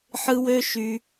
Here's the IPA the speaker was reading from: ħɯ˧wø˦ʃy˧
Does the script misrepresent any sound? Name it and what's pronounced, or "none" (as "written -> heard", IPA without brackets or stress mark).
none